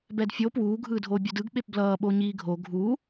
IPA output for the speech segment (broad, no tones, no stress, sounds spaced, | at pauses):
b ɛ d fʲ o p w uː ɡʱ ɯː dʱ oː bʲ u d ɯ ɡ ɓ e p b l ʌː ɓ o ɲ iː ɡʱ o ɡʱ u